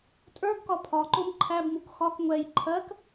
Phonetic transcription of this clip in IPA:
tʼ ə˞ ɡ k ɒ pʰ ɒ ǃ o m ǃʰ æ b m u k x ɒ k ŋʷ ɛ j ǃʰ ɜ k

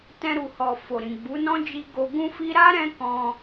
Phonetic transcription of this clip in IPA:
t ɛ̃˧ ɾ u˨ h ɔ˨ f o˨ ɾ ĩ˨ ɡ͡b u˨˦ n ɔ̃˦ d͡ʒ i˧ ɡ o˧ ɡ ũ˦ f i˦ ɾ a˦ ɾ ɛ̃˧ k ɔ̃˧

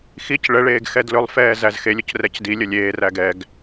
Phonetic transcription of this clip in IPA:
x i c ɭ ə ɭ eː ɡ x ɛ d l ɵ lˠ f ɛː z æ z x e lʲ ʊ c r ɛ c d i lʲ ə lʲ eː r æ ɡ ɛ ɡ

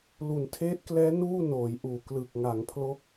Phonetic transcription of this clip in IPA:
l u˩˦ n tʰ eː˦˥ t̚ k l ɛː˦˥ n uː˥˩ n oː˩˦ j ʔ uː˨˩ k l ɯ˨˩ k̚ ŋ a˩˦ ŋ pʰ l o˥˩ k̚

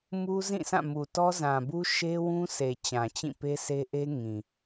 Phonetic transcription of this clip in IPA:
m u˦ z ĩ˦˨ sʰ ã˦˨ m u˨ t ɔ˦ z ã˨ b u˦ ʃ e˦ w ũ˦ sʰ e˨ t͡ɕ ã˨ t͡ɕ ĩ˦˨ p e˦ sʰ e˦ ʔ e˦ ŋ ĩ˨

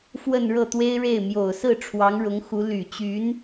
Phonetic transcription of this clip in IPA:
f w ə˥˧ n ɻ ɤ˥˩ t̪ w e˥ ɪ̯ ɻ e˥˩ ɪ̯ m j o˨˩ ʊ̯ s ɹ̩˥˩ ʈ͡ʂʰ w ɑ˧˥ ŋ ɻ ʊ˧˥ ŋ x u˧˥ l y˨˩ t͡ɕ y˧˥ n

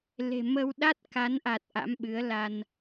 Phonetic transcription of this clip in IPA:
l e̤˨˩ m ə˧ w ɗ a˦˥ t̚ k a˨˦ n ʔ a˨˩ t̚ ʔ a̰˧˥ m ɓ ɨ˨˦ ə̯ l a˧ n

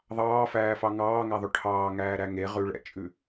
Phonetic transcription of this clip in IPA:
ðˤ ɑː f æː f ɑ ŋ ɑː ŋ æ ðˤ o ʈʰ ɑː ŋ æː ɾ æ ŋ e ʁ ʉ ɭ ɛ̰ t͡ʃʼ ʉ

